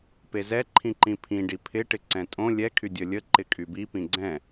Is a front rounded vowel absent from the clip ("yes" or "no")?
no